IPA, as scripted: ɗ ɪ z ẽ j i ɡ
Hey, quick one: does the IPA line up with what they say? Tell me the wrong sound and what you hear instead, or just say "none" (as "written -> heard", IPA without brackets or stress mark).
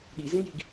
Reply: ɪ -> i